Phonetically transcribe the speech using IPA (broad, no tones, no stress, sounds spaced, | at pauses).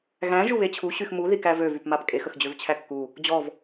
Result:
ɣ æ̃ ʒ u β e t͡ɕʰ u ɕ y x m u ð i k æ v ø v y p m a p kʼ e x ə x d͡ʑ ø v t͡ɕʰ æ kː u | d͡ʑ ɔ v